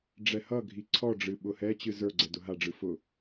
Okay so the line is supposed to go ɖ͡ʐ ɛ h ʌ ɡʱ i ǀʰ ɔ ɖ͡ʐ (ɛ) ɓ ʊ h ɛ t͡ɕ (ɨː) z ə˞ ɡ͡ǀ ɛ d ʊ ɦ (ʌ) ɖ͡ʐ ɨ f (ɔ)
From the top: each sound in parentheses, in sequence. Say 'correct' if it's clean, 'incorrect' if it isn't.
incorrect: ɨ, incorrect: ɨ, incorrect: a, incorrect: ʊ

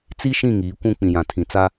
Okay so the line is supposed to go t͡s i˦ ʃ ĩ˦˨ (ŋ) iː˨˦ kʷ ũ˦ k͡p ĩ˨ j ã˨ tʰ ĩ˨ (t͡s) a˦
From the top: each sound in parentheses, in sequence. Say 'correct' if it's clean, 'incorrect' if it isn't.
correct, correct

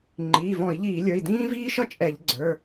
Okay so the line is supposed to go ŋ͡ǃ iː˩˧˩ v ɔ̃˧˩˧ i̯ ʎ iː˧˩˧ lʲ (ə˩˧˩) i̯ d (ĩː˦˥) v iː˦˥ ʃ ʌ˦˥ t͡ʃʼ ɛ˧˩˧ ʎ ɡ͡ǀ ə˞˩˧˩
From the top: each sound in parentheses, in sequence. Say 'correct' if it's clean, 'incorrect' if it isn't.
incorrect: ə˞˩˧˩, correct

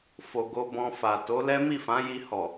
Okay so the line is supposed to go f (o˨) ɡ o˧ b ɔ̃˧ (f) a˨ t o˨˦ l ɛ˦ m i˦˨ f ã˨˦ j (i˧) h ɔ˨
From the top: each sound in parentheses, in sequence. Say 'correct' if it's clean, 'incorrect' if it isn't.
correct, correct, correct

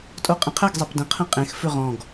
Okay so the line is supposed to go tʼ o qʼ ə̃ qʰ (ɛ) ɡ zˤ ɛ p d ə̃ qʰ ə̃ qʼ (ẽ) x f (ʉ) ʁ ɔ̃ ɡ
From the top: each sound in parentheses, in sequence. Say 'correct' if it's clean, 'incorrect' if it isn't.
correct, correct, correct

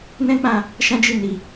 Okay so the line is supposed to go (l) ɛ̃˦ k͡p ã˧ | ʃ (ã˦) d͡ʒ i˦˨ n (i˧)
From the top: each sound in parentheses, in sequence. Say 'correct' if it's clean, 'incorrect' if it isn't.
incorrect: n, correct, correct

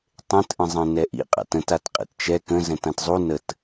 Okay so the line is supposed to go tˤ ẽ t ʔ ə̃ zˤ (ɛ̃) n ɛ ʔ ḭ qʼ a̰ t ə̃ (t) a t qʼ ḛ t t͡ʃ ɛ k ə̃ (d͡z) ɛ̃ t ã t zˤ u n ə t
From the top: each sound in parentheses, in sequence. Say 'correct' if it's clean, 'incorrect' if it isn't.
correct, correct, incorrect: z

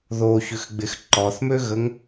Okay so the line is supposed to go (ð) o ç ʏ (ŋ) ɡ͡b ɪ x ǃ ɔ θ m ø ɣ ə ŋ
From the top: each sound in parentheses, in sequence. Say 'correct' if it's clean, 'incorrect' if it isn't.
correct, incorrect: x

